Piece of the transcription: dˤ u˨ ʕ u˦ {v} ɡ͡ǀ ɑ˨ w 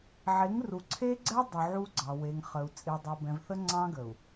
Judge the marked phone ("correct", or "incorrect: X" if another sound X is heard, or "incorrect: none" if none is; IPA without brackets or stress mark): incorrect: none